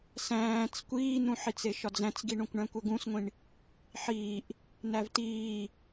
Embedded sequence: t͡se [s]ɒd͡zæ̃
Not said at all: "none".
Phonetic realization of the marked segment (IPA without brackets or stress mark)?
ʃ